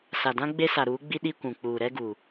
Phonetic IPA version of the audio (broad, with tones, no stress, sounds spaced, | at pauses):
s a˨ d ã˦ ɡ͡b e˦ s a˨ ɾ uː˨˦ ɡ͡b i˦ ɗ i˦ kʷ ũ˨ k͡p uː˨ ɾ ɛ˦ ɡ uː˨